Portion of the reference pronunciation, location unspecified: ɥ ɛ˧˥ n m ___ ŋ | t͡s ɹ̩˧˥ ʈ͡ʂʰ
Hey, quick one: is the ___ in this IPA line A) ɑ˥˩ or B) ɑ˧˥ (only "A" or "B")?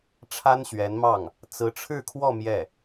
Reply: A